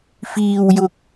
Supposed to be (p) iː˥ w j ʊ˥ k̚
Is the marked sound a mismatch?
yes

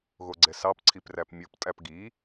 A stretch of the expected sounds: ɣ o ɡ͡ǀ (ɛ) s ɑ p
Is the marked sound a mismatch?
no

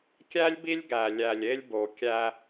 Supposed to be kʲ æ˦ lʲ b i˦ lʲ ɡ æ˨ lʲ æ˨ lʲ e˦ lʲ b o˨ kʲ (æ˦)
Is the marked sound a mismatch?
no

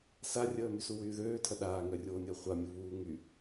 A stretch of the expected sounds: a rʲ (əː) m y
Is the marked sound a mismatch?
no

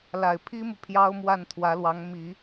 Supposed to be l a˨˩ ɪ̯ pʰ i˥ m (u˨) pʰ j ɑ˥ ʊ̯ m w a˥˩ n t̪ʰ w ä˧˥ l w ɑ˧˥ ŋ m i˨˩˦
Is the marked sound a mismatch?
no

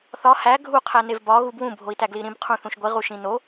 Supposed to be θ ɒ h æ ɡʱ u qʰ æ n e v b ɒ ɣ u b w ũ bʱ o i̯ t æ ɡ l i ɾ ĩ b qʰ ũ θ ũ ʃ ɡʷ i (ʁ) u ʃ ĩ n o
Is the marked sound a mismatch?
no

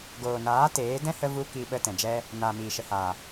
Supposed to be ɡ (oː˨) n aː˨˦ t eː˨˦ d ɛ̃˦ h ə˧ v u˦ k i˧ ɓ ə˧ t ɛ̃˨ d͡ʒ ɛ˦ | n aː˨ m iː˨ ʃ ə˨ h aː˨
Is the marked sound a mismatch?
no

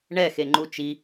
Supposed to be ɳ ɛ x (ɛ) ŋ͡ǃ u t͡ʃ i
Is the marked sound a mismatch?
yes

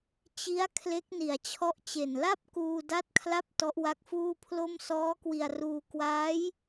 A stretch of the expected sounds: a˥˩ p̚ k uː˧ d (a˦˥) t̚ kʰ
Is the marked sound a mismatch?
no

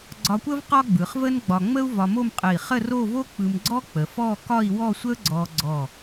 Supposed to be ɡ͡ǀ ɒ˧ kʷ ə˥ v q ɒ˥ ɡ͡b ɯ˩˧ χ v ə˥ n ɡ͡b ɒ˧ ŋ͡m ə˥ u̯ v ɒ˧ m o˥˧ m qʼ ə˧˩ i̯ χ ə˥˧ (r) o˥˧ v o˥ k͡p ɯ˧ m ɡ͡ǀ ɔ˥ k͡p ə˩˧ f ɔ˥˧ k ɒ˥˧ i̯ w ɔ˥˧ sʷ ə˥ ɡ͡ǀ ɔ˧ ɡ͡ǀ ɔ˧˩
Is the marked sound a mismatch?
no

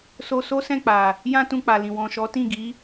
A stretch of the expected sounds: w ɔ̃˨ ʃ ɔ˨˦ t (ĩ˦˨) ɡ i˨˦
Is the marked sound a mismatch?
no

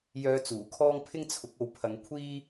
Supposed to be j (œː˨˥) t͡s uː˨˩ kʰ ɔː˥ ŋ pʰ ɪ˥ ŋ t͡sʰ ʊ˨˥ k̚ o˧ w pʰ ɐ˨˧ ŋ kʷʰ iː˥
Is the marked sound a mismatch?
yes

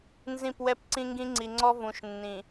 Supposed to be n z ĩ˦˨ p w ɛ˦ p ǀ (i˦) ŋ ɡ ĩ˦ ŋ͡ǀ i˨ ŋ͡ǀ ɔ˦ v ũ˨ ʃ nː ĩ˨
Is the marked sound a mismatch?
yes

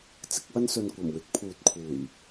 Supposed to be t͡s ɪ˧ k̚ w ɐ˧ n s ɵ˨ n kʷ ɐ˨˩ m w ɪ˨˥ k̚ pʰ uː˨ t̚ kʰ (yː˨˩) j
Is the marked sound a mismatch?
yes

